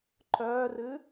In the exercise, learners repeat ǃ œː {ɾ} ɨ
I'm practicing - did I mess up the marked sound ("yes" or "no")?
yes